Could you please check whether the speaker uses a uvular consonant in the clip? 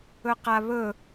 yes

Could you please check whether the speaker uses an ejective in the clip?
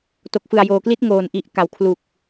no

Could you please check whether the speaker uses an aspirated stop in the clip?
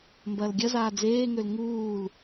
no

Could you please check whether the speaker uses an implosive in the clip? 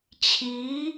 no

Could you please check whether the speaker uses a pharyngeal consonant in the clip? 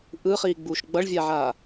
yes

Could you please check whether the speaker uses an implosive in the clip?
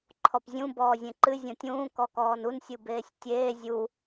no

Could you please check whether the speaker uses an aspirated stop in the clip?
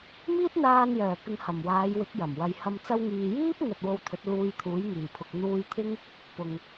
yes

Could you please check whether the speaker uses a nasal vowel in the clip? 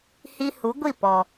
no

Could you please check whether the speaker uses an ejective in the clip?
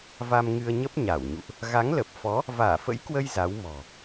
no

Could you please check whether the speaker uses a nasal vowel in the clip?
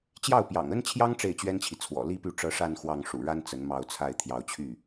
no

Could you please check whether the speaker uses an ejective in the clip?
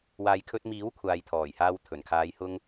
no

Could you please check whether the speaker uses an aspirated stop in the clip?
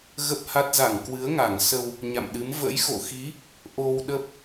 no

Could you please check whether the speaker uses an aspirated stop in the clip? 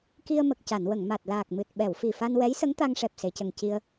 no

